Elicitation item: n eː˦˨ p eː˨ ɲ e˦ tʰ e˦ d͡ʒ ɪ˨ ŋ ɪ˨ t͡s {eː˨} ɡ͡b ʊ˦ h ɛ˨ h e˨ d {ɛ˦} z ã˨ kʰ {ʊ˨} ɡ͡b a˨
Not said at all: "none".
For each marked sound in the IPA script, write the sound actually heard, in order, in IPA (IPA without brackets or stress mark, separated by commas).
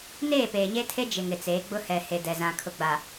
eː˨˦, ɛ˨, ʊ˨